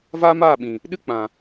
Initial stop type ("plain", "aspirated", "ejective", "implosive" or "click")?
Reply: implosive